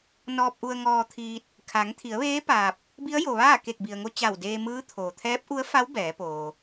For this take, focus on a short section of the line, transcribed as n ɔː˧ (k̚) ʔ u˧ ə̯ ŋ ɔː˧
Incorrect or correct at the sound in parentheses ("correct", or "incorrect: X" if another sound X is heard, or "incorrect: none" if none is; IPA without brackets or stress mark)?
incorrect: p̚